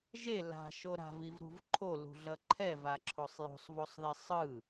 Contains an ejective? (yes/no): no